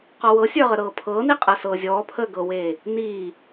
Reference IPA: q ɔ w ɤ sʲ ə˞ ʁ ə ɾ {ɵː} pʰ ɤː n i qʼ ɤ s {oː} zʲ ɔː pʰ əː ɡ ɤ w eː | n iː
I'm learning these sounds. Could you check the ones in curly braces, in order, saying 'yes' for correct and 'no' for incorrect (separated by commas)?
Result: no, no